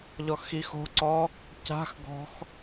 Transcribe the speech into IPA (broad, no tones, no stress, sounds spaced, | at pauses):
ʎ ɔ x i x o̤ ǀ ɔ | c a̤ x ɡ ɔ̤ x